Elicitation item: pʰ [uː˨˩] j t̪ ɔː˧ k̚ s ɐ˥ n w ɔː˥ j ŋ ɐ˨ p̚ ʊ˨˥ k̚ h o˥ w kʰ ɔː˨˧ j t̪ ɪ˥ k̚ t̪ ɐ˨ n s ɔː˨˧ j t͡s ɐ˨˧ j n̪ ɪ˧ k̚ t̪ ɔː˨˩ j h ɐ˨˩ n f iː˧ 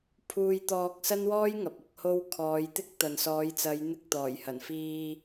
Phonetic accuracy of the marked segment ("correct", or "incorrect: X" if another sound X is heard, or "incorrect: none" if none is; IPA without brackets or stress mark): incorrect: uː˧